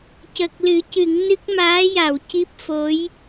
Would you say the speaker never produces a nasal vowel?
yes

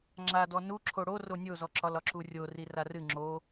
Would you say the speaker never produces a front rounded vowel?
yes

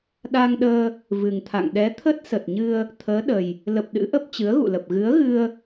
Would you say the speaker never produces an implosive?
no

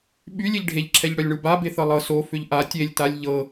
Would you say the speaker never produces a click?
no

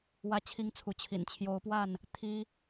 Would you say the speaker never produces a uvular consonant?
yes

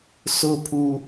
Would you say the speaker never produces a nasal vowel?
yes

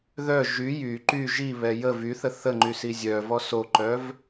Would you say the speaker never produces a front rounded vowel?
no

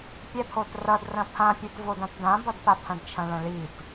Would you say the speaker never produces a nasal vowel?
no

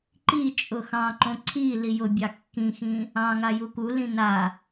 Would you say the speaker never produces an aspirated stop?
no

